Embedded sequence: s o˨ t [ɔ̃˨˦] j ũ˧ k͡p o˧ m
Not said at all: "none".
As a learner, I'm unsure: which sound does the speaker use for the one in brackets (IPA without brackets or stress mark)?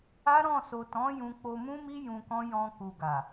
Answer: ɔ̃˨˦